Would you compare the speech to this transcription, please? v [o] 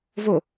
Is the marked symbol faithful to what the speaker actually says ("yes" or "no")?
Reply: yes